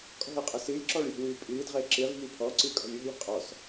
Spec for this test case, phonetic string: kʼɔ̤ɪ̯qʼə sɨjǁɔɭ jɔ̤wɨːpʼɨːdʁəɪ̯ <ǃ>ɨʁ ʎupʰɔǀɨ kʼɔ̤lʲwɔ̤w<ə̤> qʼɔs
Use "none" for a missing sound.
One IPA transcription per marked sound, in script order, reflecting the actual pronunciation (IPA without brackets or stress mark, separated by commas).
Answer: ǁ, ə̤